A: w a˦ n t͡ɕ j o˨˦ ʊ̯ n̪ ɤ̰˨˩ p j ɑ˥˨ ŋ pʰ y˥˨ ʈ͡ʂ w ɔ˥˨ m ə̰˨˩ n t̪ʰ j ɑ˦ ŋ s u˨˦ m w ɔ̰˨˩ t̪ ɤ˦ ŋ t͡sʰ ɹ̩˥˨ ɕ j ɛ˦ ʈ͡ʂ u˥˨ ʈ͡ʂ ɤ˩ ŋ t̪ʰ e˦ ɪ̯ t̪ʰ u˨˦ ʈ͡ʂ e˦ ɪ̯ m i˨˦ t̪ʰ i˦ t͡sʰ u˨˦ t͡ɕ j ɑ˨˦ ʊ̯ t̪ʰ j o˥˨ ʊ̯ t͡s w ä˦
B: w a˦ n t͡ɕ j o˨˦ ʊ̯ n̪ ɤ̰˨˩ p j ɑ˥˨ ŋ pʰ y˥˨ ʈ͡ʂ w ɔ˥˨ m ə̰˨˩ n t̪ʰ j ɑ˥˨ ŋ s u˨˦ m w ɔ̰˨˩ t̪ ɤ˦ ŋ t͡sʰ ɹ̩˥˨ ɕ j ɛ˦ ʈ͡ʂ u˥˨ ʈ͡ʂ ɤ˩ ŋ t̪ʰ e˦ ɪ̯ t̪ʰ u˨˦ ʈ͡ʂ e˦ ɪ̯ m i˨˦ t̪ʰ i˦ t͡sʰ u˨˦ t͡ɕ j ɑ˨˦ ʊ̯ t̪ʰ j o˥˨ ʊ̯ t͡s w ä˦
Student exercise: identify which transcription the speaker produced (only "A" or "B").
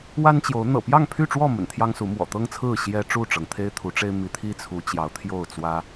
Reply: A